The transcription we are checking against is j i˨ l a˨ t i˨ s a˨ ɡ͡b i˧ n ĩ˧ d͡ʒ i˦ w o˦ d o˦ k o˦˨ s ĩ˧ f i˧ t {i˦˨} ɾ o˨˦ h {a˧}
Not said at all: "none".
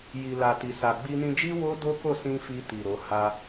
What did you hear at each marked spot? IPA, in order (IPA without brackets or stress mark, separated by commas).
i˨, a˧